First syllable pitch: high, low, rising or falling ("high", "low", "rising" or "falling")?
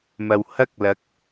low